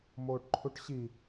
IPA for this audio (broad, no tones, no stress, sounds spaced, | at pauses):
m oː ʈ ǃʰ u ʈ ɕ i